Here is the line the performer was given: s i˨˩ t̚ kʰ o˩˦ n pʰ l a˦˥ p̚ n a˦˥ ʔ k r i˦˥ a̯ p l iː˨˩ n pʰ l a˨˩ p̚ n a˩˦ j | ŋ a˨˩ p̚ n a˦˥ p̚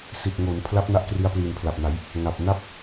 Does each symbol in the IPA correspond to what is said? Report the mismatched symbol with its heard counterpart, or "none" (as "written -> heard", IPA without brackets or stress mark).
kʰ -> ŋ